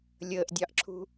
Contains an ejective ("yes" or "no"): no